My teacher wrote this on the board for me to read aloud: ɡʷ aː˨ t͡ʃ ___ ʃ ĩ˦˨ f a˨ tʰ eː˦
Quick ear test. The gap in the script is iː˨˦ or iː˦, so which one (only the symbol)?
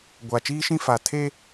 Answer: iː˦